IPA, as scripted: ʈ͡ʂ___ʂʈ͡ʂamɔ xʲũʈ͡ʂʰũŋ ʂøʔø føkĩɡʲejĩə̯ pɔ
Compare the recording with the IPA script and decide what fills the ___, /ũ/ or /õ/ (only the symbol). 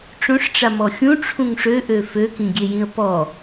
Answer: õ